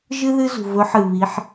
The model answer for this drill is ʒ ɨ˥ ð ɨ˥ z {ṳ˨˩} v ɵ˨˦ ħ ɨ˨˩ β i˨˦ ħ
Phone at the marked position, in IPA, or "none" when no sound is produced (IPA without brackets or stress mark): ṳ˨˩